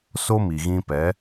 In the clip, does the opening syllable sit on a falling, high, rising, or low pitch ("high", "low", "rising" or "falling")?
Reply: high